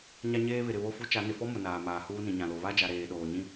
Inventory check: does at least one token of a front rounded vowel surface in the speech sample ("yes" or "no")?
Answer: no